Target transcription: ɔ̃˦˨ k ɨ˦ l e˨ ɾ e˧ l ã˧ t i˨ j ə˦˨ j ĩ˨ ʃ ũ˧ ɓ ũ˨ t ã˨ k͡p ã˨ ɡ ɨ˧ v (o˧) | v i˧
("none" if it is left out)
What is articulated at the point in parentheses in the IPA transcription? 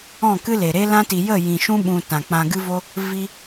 o˧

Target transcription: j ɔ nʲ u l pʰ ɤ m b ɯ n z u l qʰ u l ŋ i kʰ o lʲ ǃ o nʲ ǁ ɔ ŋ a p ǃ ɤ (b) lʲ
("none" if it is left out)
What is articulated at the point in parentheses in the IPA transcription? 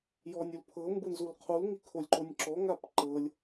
none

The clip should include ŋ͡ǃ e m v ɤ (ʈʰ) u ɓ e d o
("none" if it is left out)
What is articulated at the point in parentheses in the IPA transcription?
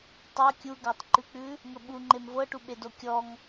ʈ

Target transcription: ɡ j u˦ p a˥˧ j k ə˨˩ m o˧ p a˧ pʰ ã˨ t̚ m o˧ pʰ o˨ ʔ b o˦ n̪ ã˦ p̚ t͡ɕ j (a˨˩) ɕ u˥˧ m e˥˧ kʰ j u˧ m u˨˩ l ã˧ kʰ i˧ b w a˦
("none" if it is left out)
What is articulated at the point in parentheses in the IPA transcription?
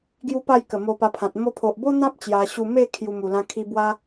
a˧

